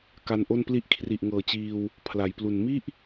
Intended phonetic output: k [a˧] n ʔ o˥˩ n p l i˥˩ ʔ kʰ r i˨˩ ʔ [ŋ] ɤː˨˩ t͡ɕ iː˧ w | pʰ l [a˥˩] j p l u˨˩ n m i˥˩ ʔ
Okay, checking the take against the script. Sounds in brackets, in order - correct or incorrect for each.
correct, correct, incorrect: a˩˦

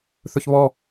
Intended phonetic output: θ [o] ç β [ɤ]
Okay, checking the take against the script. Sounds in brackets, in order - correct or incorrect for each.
incorrect: ɵ, incorrect: ɔ

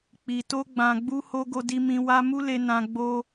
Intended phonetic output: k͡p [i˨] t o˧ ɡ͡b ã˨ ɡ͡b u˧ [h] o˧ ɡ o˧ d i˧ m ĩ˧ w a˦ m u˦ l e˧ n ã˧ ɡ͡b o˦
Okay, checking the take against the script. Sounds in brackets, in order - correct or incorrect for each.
correct, correct

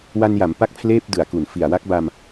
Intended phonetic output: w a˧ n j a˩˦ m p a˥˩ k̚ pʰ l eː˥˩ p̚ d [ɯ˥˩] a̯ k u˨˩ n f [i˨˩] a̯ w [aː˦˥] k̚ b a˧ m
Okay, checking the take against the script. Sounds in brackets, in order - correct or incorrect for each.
incorrect: ɯ˨˩, correct, incorrect: a˦˥

